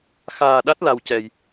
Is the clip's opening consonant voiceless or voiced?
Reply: voiceless